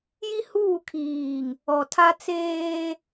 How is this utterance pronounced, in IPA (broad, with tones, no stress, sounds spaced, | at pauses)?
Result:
j i˦ h uː˦˨ kʰ iː˨ ŋ | ɔ˨ tʰ a˦ t͡s eː˦